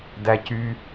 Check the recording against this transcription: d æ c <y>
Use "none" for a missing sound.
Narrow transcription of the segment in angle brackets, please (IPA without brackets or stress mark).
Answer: y